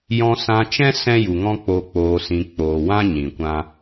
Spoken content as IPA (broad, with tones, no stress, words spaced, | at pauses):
jɔ̃˧sã˧t͡ʃɛ̃˦ sɛ̃˦ju˨ŋɔ̃˦k͡po˧ k͡poː˧sĩ˧ k͡poː˨wã˦ ɲĩ˨kʷã˦